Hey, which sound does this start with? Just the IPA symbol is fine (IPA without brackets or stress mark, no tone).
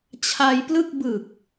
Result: t͡ɕʰ